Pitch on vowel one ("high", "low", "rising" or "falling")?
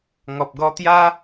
low